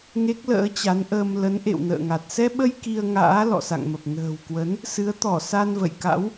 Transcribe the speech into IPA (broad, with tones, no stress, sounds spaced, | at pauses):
ŋ e˦˥ k̚ l ə̰ː˧˥ t͡ɕ a˨˦ n ʔ əː˧ m l ə˨˦ n ʔ ḛ˧˨ w n ə̰ː˧˨ ŋ a˨˩ t̚ s ɛ˧ ɓ ə˧ j k i˧ ə̯ ŋ a̰ː˧˥ l ɔ̰˧˨ s a̰˧˨ ŋ m ə˨˩ p̚ n ə̤ː˨˩ w k w ə˨˦ n | s ɨ˨˦ ə̯ t̪ ɔ˧˩ s a˧ n v ə̰˧˨ j k a̰˧˥ w